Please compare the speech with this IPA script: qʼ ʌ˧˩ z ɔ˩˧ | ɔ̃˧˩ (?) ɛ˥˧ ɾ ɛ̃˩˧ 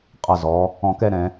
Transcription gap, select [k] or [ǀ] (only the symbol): k